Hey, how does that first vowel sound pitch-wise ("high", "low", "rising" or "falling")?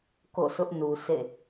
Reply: falling